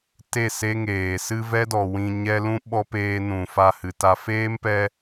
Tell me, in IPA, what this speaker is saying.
t e˦˨ s e˦ ŋ eː˨ s ɨ˧ v ɛ˦ d ɔ˨ w ĩ˨ ɲ ɛ˦ l ũ˦ ɓ ɔ˦ p eː˧ n ũ˨ f a˧ h ɨ˨ t a˧ f eː˦ m p ɛ˧

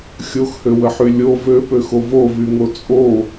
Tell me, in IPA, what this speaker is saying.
xʲ o x h ø w ə ħ y lʲ o v ø p ø x o v o v y ŋ o t͡sʼ o

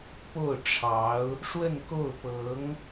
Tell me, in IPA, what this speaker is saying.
p o˥˩ ʊ̯ ʈ͡ʂʰ ɑ˧˥ ʊ̯ | ʂ w ə˥˧ n k o˥˩ ʊ̯ p ɤ˧˥ ŋ

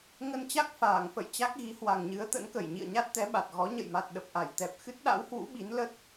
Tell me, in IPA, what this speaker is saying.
ŋ ə˧ n t͡ɕ a˦˥ k̚ f aː˧˩ ŋ f ə̰˧˨ j t͡ɕ a˦˥ k̚ ɣ i˨˦ h w a˨˩ ŋ ɲ ɨ˨˦ ə̯ t̪ ə̰˧˥ n k ə˧˩ j ɲ ḭ˧˨ ə̯ ɲ a˦˥ t̚ t̪ ɛ˨˦ ɓ a˨˩ t̚ ɣ ɔ˨˦ ɲ ə̰˧˨ j m a˨˩ t̚ ɗ ə˨˩ p̚ ʔ a˧˩ j t̪ ɛ˨˩ p̚ x ɨ˦˥ t̚ ɗ a̰˧˥ w h w ṵ˧˥ ɓ i˨˦ n l ə˦˥ t̚

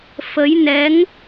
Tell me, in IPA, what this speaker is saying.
f ə˨˦ j n ɛ˨˦ ŋ

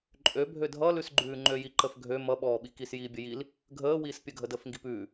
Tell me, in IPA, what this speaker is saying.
ǃʼ ø bʱ ø dʱ ʌ l ʉ s ɡ͡ǃ ʉː ŋ͡ǃ ø j i ǃ ə f ɡʱ ø m ʌ ɓ ɔː ɓ i k i s j iː bʲ ə j i l | ɡʱ əː w iː s pʲ ə ɡʱ ə d əː f ŋ ɡ i p ʉː

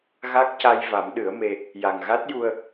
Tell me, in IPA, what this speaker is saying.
ɣ a˦˥ k̚ c a˧ j v a˨˩˦ m ɗ ɨ˨˩˦ ə̯ m e˧ | j a˨˩ ŋ ɣ a˦˥ t̚ j u˧ ə̯

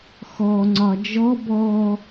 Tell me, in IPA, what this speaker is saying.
x ɔ ŋ͡ǀ ɒ d͡ʒ ɔ b ɔ

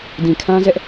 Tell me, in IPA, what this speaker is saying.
d ĩ˨ kʰ ã˦ z ɛ˦ ʔ

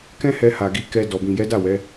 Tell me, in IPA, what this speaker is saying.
k ɛ̃˦ h ɛ˧ h a˨ ɡ i˨ k ɛ˧ d ɔ˨ b ĩ˨ j ɛ˨˦ d a˦˨ w ɛ˨˦

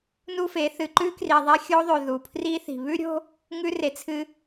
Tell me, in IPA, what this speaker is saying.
n u˦ f e˨˦ θ ɨ˨ ǃ ʉ˦ k r i˨ ðˤ e˦ xʲ o˦ ðˤ ʉ˨ ð u˨ pʰ r i˦ θ i̤˨ β ʉ˦ ɾʲ o̤˦ | ŋ ʉ˦ r e˨ t͡sʰ ɨ˦

